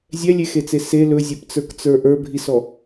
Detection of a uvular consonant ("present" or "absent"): absent